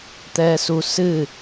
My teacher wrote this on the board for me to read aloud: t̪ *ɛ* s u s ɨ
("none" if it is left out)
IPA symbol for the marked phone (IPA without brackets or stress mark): ɛ